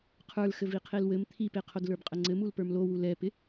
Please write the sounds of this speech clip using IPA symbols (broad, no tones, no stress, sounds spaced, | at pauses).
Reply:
qʰ ə˞ l x ɘ v i qʰ e l w ɘ m t̪ʰ i p e qʰ o d l ə˞ b qʼ ə ŋ͡ǀ ɘ m u l p ə˞ m l o w u l ɛ p ɪ